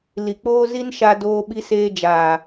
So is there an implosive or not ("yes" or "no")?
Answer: yes